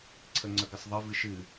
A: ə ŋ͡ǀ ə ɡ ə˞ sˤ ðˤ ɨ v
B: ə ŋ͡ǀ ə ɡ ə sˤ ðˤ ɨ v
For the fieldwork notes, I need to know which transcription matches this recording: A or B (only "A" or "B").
B